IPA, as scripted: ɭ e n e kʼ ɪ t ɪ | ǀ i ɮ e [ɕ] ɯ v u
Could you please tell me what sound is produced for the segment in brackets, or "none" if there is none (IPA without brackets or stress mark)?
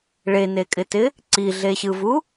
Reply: ɕ